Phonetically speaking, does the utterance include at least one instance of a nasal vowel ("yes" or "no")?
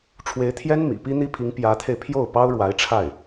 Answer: no